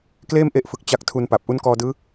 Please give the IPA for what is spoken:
k l eː˥˩ m ʔ e˦˥ ʔ f ɯ˨˩ k̚ t͡ɕ a˦˥ k̚ tʰ u˧ n p a˨˩ p̚ ʔ u˦˥ n k ɔː˧ d ɯː˦˥

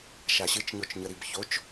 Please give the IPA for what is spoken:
ʃ a ɕ ɨ t͡ʃ ɲ o t͡ʃ ɲ ə ɾ i b ç o t͡ʃ

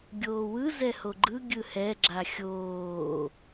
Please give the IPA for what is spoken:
ɡʲ oː w ɯ z ɛ h o ɡ͡ǃ ɯ ɡʲ ɯ h ɛ ɡ͡ǁ a xʲ oː

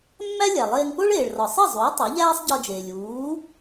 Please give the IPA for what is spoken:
mː æ˥ lʲ æ˩ lˠ eː˧ ŋ p o˥ ɭ eː˩ ɭ r ɒ˩ sˤ i˥˩ zˤ uː˩˥ tˤ o˩˥ ʎ æː˥ sˤ ɟ ɒ˧ d͡ʒ eː˩ lʲ uː˩˥

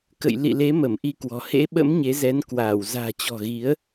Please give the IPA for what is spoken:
k ə̰˧˨ j l ḭ˧˨ l e˨˦ m ə˧˩ m ʔ i˧ k w ɔ̤˨˩ h ḛ˧˥ ɓ ə̰˧˥ m ɲ e˨˦ z ɛ˨˦ n k w aː˧˩ w z a̤ː˨˩ t͡ɕ ɔ̤˨˩ ɣ i˨˦ ə̯

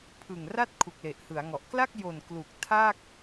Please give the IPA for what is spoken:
pʰ ɯ˨˩ ŋ r a˥˩ t̚ kʰ u˨˩ k̚ l e˨˩ ʔ h ɯ˩˦ a̯ ŋ ɔ˨˩ ʔ k l a˥˩ k̚ j o˨˩ n k l u˨˩ k̚ tʰ a˥˩ k̚

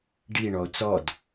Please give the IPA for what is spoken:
ɖ i ɳ ɔ o̯ t͡s ɔ d

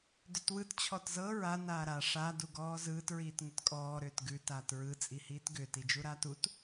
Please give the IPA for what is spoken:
d ʏ t w ɯ t t͡ɕʰ ɔ t z ɤ ɹ a n aː ɾ a ʂ a d u ɡ ɔː z ɯː t ɹ iː t ŋ ʏ t kʼ ɔː ɾ ʏː t ɡ ʉ t aː t ɹ ɯ t͡sʼ i h iː t ɡ ʏː t i d͡ʒ u ɾ aː t u t

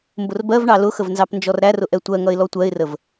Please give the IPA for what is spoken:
m b ʊ r b ɜ v ɳ ɑ l ʊ x ə v n z ɑ p n d͡ʒ ɔ r ɾ æ r ʊ ʔ ɛ tʷ ɜ ŋ ʌ ɪ̯ l ɔ tʷ ɜ ɪ̯ r ə v

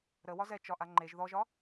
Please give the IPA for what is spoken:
ɾ ə w ɒ z ɛ t͡ʃ ɒ ʔ a ŋ͡ǃ e ʒ ð ɔ ʒ ɒ

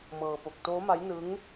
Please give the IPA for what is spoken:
m ɤː˧ p o˨˩ k̚ t oː˦˥ m a˦˥ j n ɯ˦˥ ŋ

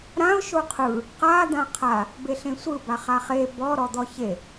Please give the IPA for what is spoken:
ɾ ã ʊ̯ ʃ o qʰ ɯ | q a d̪ ã qʰ a | b e ɬ ẽ sʷ ɯ b a χ a χ e b ɔ ɾ ɔ d̪ ɔ ç e

